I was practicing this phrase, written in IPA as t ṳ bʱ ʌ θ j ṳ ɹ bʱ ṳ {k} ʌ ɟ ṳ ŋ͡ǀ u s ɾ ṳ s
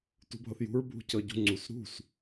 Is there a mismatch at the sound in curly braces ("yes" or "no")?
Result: yes